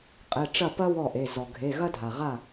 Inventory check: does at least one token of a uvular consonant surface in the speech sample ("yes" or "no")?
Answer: yes